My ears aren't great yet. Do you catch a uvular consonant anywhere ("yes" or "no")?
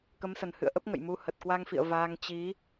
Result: no